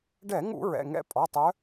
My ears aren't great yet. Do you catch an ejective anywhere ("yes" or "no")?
yes